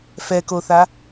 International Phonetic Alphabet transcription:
f ɛ k o θ a

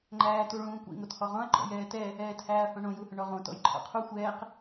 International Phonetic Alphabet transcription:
ŋ͡ǃ æː t u ɭ ũː kʷ ḭ ŋ o t h ɔ ʁ ɔ̃ ɐ̯ ɡ͡ǃ ɔ̰ j ɛː t ɛ | ɛː t h æː ɐ̯ h õ ɳ õ j u h ʏ ɳ ɔ ʁ õ t ɔ̰ j ǃʰ ɔ̰ qʰ u xʷ ɛː q

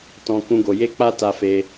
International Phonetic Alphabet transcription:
t ɔ̃˦ k ũ˦ ɡ o˧ j e˦ k͡p a˦ t a˧ f e˧

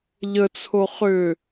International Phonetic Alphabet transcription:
ʎ ə t͡sʰ o χ ʏ

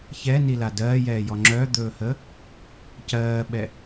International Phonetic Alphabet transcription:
ç ɛ n i l a d ɜː j ɛː j ɔ ŋ͡ǁ œ d̪ ɵː h ə | c ɜː ɓ ɛ

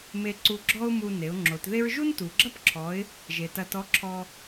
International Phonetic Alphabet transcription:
m e˧ ǀ u˧ ɡ͡ǁ ɔ˥ ʊ̯ m u˧ n e˩˧ ʊ̯ ŋ͡ǁ o˩˧ t ð e˥ ɹ ʒ u˥ n t u˩ ɡ͡ǁ ɐ˥ p ǁʰ ɔ˩˧ ɪ̯ | ʒ e˩ t ɐ˧ t ɔ˧˥ ǁʰ ɔ˧

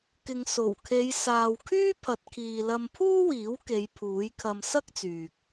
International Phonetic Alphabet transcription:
k ɪ˨ ŋ s o˨˩ w kʰ e˨˧ j s aː˨ w kʰ yː˥ pʰ ɐ˨ t̚ kʰ iː˨ l ɐ˧ m pʰ uː˥ w iː˨˥ w k e˨˧ j pʰ uː˨˥ j kʰ ɐ˧ m s ɐ˥ k̚ t͡s yː˨ k̚

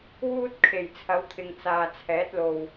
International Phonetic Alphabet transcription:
w uː˥ t̚ kʰ e˨˩ j t͡sʰ ɐ˨˥ w t̪ʰ ɪ˨ ŋ t͡s aː˨ t͡sʰ ɛː˨˥ t̚ l o˨ w

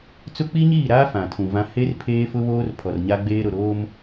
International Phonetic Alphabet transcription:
t͡s ʊ˦ k͡p i˦ ɲ iː˦˨ ɾ aː˦ f ã˨ tʰ ũ˨ v ã˦ h e˦ r pʰ eː˦ f ʊ˦ β oː˦ r pʰ ɔ˨ r ɲ a˦ ɡ͡b eː˦ ɾ ʊ˨ ɾ oː˦ m

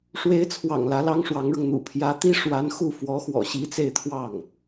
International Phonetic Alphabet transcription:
ʂ w e˧˥ ɪ̯ t͡sʰ w ɑ̰˨˩ ŋ l ä˧˥ l ɑ˥ ŋ ʂ w ɑ˧˥ ŋ ɻ ʊ˧ ŋ n̪ ṵ˨˩ pʰ j ä˧˥ t̪ i˥ ʂ w a˧˥ n x u˥˩ f w ɔ˧˥ x w ɔ̰˨˩ ɕ i˧˥ t͡s e˥˧ ɪ̯ t̪ʰ w ɑ˥˩ ŋ

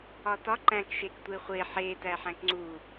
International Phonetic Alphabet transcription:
ɒ t ɒ ǃ æ̃ k ʃ e k tʷ e χʷ e ħ e t æ ħ æ̃ k ŋ͡ǀ u

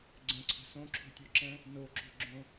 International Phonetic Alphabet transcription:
ɡ͡ǀ ə̃ ǀʰ ə̤ s õ ǁʰ ṳ tʲ o ǁ ɛ̃ | n o ǁ ṳ ɡ͡ǁ õ

